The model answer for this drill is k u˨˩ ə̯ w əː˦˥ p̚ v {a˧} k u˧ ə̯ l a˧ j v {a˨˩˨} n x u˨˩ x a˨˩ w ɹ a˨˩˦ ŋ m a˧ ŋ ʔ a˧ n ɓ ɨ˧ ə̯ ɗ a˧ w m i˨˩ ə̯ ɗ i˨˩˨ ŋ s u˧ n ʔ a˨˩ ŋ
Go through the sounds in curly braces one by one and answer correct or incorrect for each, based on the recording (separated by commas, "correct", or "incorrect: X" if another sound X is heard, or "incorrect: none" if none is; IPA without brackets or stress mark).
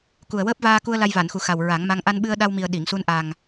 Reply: incorrect: aː˧, correct